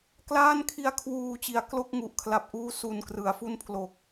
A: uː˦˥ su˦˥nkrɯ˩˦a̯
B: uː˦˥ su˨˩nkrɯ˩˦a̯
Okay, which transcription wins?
B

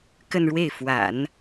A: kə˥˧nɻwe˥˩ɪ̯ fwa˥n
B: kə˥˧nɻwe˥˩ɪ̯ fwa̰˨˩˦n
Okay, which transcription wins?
B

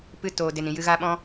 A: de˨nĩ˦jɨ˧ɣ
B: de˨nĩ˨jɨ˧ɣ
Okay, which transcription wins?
B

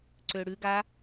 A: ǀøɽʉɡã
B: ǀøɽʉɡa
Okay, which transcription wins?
B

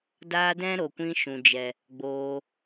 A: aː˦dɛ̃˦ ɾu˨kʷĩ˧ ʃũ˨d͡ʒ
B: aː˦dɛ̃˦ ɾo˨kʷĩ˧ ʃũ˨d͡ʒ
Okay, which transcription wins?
B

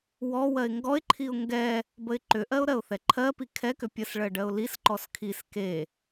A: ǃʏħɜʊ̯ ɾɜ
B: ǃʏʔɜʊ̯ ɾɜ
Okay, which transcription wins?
B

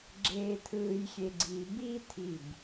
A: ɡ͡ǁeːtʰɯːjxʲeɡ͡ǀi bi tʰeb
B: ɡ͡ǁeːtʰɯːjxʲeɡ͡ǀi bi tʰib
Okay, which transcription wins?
B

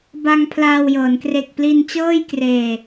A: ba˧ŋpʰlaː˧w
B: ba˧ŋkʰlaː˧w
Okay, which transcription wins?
A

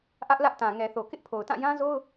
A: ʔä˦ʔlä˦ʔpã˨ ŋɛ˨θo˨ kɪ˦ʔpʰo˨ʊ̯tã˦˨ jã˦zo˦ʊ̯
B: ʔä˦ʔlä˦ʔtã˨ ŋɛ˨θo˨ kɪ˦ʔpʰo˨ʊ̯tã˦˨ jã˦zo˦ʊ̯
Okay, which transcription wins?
B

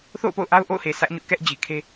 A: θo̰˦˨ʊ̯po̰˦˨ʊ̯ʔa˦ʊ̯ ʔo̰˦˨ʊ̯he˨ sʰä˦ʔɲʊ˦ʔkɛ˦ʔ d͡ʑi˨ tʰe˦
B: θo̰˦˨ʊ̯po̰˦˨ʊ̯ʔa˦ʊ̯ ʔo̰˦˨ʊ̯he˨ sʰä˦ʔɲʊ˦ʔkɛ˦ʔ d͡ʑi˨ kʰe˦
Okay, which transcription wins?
B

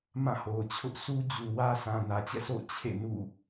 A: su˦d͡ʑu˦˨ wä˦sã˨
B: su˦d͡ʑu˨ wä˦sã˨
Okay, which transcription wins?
B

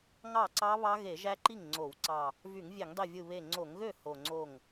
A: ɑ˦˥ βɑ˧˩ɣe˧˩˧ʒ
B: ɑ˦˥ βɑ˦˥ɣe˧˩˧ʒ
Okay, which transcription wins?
B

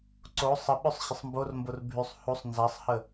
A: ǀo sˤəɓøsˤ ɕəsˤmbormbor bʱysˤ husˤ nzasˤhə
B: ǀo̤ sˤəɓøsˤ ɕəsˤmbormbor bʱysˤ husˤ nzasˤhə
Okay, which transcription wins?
A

